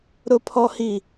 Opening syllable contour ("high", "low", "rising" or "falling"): high